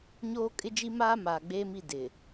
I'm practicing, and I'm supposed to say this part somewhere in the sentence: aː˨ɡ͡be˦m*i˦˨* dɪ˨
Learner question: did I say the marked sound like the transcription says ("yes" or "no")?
yes